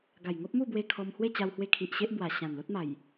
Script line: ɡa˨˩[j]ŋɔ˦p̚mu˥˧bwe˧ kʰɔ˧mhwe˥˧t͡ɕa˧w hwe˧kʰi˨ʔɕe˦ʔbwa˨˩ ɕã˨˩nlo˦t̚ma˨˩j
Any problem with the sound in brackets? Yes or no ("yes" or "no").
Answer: no